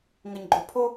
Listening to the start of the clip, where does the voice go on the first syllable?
low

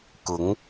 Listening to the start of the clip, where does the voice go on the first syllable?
rising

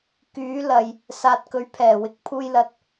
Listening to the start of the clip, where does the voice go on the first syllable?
rising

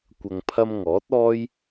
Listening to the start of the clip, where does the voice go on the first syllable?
low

